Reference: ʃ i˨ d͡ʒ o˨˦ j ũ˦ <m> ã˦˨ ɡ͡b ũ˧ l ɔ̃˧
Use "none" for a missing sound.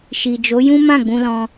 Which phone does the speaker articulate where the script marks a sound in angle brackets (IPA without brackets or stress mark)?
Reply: m